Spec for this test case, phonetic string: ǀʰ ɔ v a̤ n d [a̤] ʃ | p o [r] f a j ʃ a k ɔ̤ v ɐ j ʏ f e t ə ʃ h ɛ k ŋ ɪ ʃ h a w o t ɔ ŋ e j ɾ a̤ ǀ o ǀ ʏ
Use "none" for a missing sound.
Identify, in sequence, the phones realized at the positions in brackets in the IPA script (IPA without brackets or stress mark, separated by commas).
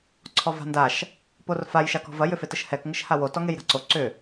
a, r